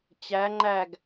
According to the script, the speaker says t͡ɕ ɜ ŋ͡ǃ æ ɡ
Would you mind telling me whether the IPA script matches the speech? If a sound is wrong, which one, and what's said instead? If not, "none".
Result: ɜ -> æ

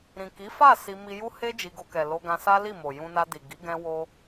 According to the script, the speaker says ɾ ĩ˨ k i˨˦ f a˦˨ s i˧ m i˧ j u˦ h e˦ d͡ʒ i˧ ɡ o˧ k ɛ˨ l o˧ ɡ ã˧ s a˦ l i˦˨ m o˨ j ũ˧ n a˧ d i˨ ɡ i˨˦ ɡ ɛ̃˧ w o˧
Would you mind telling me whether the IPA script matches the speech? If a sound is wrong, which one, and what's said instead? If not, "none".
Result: none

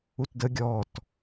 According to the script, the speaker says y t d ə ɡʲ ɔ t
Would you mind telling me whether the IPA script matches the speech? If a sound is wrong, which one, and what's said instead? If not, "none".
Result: y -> u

